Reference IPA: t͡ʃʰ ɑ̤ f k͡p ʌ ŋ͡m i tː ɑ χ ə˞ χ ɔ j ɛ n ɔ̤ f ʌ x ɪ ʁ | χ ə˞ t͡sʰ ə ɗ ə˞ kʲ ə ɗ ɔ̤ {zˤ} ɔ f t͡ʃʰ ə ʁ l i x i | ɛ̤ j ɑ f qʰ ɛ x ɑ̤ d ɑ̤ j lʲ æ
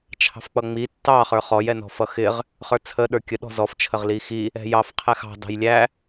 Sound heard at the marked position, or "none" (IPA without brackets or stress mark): z